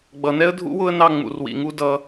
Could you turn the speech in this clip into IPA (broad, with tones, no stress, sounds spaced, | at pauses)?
ɡ͡b ʌ˨ n ɛ˦ ə̯ dʱ ṵ˦ w ʊ˦ ə̯ n ɑ˦ ŋ͡m ṵ˨ r w ḭ˨ ŋ u˦ d ʌ˦